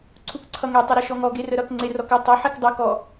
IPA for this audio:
ǀʰ u k ǀʰ ʌ ŋ e tˤ u ɾ ʌ ʃ ɔ ŋ ɔ ɡ e r ə ɾ ʌ k ŋ͡ǀ e r ɔ k ɪ tˤ ə ħ e k dˤ ʌ k ɔ

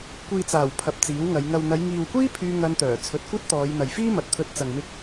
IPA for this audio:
kʷ iː˨ t͡s aː˨˩ w pʰ ɐ˨ p̚ t͡s iː˨˥ w ŋ ɐ˨˧ j ŋ ɐ˨ w n̪ ɐ˨˧ j ŋ iː˨ w kʷ iː˥ pʰ yː˧ ŋ ɐ˧ n t̪ œː˨˩ t͡sʰ ɵ˨˥ t̚ kʷ ɐ˥ t̚ t̪ ɔː˨˧ j n̪ ɐ˨ j f iː˥ m ɐ˨ t̚ t̪ʰ ɵ˧ t̚ t͡s ɐ˨ ŋ m ɪ˧ k̚

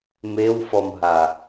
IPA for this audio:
m e w f ɔ m ɦ a

